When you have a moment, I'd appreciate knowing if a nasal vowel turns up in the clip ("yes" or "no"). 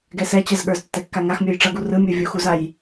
no